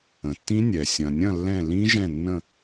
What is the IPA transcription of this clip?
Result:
ə̃˩ tː ĩ˦˥ nʲ ɛ˩ sʲ ɐ̃˩ nʲ ɐ̃˦˨ lː ɛ̃˦˨ l ĩ˦˥ ʒ ɛ̃˦˨ nː ə̃˦˨

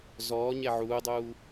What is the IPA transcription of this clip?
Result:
z ɔː ɲ ɛ ʕ uː dˤ uː

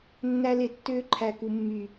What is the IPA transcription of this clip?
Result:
nː æ˧ l e˨ tː øː˧ ǃʰ æ˨ k u˨ mː y˨

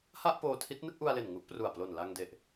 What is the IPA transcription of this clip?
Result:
h a˥˩ ʔ p oː˧ tʰ i˦˥ t̚ n ɯ˥˩ k̚ ʔ u˧ a̯ l e˨˩ n ŋ u˦˥ ʔ p r u˨˩ a̯ p l o˨˩ n l a˧ ŋ d e˨˩ ʔ

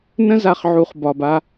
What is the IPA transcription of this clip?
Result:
n ə̃˦ z a˨ χ ʕ u˨ χ b ɒ˨ b a˧

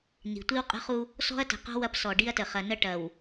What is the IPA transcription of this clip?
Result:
n i̤˨ tʷ i˦ w qʼ ə̤˦ χ u˦ | s ɔ̤˦ ɐ̯ t ə̤˨ q ɔ̤˦ w ɐ˦ p s ɔ˨ ɖ i˦ ɐ̯ t ə˨ χ ɐ˨ n ə˦ ʈ ɐ˨ w

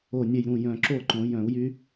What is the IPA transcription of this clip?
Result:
o˧˩ nʲ e˧˩ j ɾ ũ˥˩ j œ̃˧˩ ǁ o˥˩ ǃ õ˨˩˦ j œ̃˨˩˦ u̯ j y˦˥

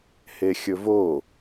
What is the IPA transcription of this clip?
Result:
h e xʲ ɵ v o

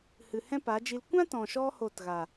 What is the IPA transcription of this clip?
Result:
h ɨ˨ h ɛ̃˦ p a˨˦ d͡ʒ i˧ l kʷ ã˦ t ɔ̃˨ ʃ ɔ˧ h o˦˨ t ɣ a˨

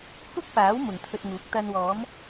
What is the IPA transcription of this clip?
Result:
k ʊ˥ k̚ p aː˨˥ w m ʊ˨ ŋ t̪ʰ ɵ˧ t̚ ŋ uː˨˥ k̚ t̪ ɐ˧ n w ɔː˨˥ m

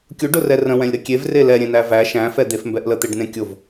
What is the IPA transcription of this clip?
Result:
kʲ ʊ ɖ ʊ r ɛ r ə̃ w ɛ̃ lʲ ɾ ə kʲ e v r e l ɛ ɾʲ ẽ n æ v æ ʃ æ̃ f ɛ d̪ e f m b ɛ ʔ l ə t̪ e ɖ n ẽ kʲ ʊ v

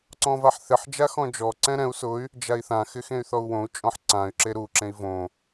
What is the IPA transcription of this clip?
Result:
ǀ ɔ̃ v a ħ θ ɪ ħ d͡ʒ a x ɔ̃ d͡ʒ ɔ ǀ ɛ̃ ɾ ɛ̃ u̯ s ʊ y̯ | d͡ʒ a i̯ θ ã x ɪ x ẽ y̯ θ ɔ u̯ w õ u̯ t͡ʃʼ ɔ̃ ħ ǀ ã y̯ ǁ e ɾ u ǁ ẽ i̯ v õ

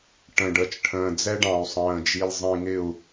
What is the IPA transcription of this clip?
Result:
ʈ ə̃˨ ɖ ə˨ t͡ʃ ʈʰ ə̃ː˨ d͡z ɛ˦ ɖ ɑ̃˨ u̯ sˤ ə̃ː˨ d͡ʒ i˨ l zˤ ĩ˨ ŋ ɪ˦˨ u̯

